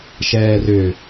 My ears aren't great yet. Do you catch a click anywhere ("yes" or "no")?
no